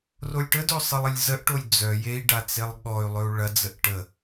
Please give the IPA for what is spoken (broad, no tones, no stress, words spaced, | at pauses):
rolʲʈədɵ sˤɨlˠəlʲzəʔʈolʲ d͡zœ jei̯ɖa t͡selˠɠɔy̯lˠɵu̯ ɭɐd͡zəʔ ʈə